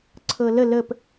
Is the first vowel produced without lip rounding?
yes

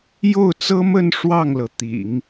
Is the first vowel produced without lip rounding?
no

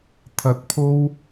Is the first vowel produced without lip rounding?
yes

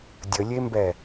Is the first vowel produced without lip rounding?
yes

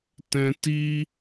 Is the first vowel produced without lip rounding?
yes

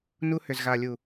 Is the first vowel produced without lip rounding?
no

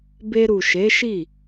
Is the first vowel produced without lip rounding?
yes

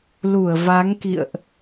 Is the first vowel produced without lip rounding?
no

